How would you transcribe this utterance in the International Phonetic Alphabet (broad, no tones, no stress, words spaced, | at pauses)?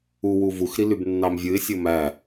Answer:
uwu vuxɾilybnːɑm vʲɯɪ̯sʲo mæ